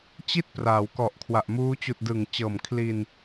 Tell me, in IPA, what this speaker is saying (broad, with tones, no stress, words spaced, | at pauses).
t͡ɕi˥˩t̚praː˩˦w kɔ˨˩ʔkʰwa˨˩ʔmuː˦˥ t͡ɕuː˨˩t̚ dɯ˨˩ŋt͡ɕɤː˨˩mkʰli˧n